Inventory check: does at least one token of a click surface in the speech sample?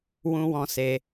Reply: no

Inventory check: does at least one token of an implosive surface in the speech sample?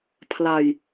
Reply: no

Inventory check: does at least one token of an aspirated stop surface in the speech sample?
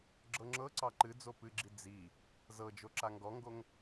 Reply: no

